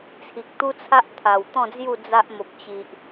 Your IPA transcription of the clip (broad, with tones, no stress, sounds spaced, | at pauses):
t͡sʰ i˨ k̚ t̪ u˦ t͡sʰ a˦ ʔ t̪ʰ a˨˩ w t̪ ɔ̃˥˧ d͡z j u˥˧ d͡z a˦ ʔ m o˨ p̚ t͡ɕ i˨ ʔ